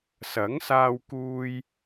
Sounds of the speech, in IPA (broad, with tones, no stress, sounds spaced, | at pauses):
s ɐ˨˥ ŋ s aː˧ w k uː˧ j